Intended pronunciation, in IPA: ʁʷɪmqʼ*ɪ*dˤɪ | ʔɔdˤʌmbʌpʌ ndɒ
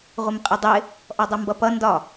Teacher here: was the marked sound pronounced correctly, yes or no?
yes